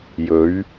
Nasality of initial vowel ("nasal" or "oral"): oral